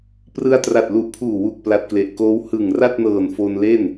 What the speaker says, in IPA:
p r ɯ˧ a̯ t r a˨˩ t̚ l u˨˩ ʔ pʰ uː˨˩ w u˨˩ k̚ p l a˨˩ t̚ k l e˨˩ ʔ k oː˦˥ w h ɯ˨˩ ŋ r a˥˩ t̚ n ɤː˨˩ n f o˧ n l e˥˩ n

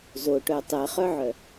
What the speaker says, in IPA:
z o ʈ œ tˤ ɛ χ œ ʕ œ

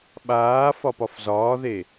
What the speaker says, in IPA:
ɓ aː f ɒ p ɒ f z ɒː ð e

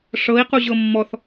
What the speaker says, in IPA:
ʂ ɤ i̯ q u ʑ ɤ mː ɔ θ

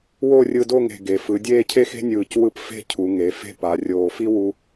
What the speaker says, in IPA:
w o˥˧ rʲ ɯ˧ d o˥˧ ŋ e̤˧˩ ɡ e˩˧ f ɯ˩˧ dʲ eː˥˧ cʰ e˥ x e̤˥ nʲ ɯː˧˩ c w ɯ˥˧ p f e̤˥˧ cʰ u˩˧ ŋ e˩˧ f e̤˥˧ p a˩˧ rʲ oː˧˩ f i˥ w u˥

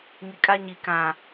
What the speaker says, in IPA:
ŋ i˨ kʼ a˦ ɲ i˨ k ã˨

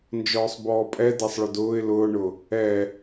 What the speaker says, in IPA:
n d͡ʒ ɔː sˤ b ɔː pʼ ɛ d a sˤ ɭ ʊ d ʊː ɪ̯ l ʊː ɳ ʊ | ɛ

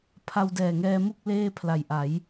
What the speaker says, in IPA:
pʰ a˧ w d ɛː˨˩ ŋ ɛː˧ m u˥˩ k̚ l eː˥˩ pʰ l a˨˩ j ʔ a˩˦ j

